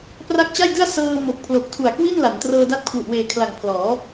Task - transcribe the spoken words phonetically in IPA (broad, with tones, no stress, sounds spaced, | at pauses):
p r a˦˥ k̚ t͡ɕ a˥˩ j d ɯ˥˩ a̯ s ɤː˧ m o˨˩ k̚ pʰ l o˨˩ k̚ tʰ u˨˩ a̯ k w i˥˩ n l a˩˦ n t r ɤː˧ d a˦˥ t̚ kʰ w u˨˩ ʔ w eː˨˩ kʰ l a˨˩ ŋ pʰ l ɔː˩˦